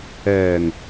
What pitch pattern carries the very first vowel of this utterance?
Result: low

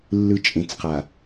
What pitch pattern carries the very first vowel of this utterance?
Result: low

